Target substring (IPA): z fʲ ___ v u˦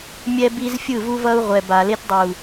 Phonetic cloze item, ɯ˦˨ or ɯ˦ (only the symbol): ɯ˦˨